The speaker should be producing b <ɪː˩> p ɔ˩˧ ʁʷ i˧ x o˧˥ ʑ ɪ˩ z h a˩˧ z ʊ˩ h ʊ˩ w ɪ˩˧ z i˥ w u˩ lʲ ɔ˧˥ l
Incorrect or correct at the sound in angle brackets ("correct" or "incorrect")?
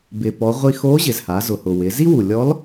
incorrect